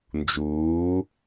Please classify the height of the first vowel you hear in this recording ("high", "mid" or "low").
high